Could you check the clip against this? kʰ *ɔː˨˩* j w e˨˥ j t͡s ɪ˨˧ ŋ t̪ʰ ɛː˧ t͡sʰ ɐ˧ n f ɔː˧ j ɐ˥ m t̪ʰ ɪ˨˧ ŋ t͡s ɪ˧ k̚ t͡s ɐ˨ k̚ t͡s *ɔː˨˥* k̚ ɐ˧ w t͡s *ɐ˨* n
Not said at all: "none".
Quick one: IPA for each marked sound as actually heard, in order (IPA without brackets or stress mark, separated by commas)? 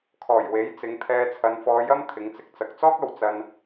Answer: ɔː˨˩, ɔː˥, ɐ˧